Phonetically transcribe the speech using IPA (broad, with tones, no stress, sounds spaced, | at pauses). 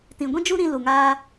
t ĩ˨ ɡʷ ĩ˦ d͡ʒ u˦ ɾ ĩ˧ l u˨ ŋ aː˦